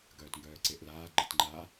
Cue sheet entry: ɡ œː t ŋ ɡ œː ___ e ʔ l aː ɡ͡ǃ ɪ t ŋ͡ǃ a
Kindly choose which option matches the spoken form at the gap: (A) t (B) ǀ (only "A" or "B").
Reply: B